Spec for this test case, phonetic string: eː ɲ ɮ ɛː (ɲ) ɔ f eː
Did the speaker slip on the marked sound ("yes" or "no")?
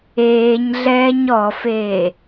no